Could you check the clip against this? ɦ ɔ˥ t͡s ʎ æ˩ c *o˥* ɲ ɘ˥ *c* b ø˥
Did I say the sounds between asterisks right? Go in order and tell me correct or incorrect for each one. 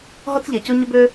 correct, incorrect: none

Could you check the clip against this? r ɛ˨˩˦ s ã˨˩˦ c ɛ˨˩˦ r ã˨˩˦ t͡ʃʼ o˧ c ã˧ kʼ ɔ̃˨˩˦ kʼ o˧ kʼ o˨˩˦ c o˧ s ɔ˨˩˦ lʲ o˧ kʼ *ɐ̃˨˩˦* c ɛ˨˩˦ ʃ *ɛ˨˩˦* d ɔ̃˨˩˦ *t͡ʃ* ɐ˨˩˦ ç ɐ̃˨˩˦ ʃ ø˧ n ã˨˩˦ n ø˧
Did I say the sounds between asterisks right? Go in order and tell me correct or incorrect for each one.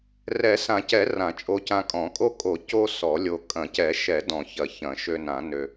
correct, correct, incorrect: ç

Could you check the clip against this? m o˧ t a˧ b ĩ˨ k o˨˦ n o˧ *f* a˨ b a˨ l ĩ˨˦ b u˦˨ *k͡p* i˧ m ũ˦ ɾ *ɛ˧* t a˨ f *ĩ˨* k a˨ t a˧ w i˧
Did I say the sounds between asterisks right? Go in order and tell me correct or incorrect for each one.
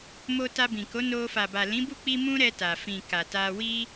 correct, correct, correct, correct

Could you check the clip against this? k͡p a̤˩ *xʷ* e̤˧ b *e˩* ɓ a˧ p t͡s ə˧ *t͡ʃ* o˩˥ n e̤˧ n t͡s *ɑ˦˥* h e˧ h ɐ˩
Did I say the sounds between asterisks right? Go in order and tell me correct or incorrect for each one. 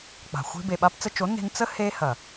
correct, correct, correct, incorrect: ə˦˥

